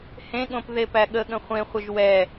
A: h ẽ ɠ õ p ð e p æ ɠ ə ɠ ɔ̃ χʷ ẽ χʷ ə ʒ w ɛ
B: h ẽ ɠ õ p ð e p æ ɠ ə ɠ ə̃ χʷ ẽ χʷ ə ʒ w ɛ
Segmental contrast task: B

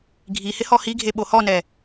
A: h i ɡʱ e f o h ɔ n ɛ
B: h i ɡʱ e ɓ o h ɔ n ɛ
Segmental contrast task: B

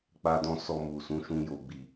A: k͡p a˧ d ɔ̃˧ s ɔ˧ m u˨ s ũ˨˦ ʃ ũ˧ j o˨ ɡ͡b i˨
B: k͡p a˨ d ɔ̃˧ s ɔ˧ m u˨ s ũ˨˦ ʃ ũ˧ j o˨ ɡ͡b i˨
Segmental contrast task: A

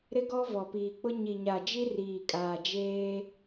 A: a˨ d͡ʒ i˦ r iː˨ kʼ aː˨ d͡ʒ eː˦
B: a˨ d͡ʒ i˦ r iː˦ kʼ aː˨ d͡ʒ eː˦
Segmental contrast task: A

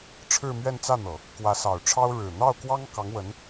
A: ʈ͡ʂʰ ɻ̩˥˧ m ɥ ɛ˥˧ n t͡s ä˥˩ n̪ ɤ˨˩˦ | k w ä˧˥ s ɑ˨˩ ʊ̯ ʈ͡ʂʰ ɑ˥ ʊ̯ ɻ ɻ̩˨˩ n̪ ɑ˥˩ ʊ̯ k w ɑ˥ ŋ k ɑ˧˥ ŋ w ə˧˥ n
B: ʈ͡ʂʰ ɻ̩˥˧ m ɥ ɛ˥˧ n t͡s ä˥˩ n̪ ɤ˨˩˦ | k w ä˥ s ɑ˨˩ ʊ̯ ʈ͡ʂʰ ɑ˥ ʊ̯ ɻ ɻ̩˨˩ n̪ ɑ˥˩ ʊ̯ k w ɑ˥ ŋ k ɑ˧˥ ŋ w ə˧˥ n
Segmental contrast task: A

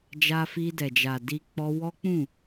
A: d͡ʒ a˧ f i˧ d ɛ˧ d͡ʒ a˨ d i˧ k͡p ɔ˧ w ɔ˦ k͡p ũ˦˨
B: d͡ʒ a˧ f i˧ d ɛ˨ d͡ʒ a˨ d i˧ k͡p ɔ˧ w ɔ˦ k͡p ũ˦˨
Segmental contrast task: B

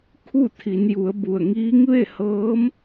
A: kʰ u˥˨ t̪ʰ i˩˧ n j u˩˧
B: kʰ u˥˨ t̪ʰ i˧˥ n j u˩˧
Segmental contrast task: A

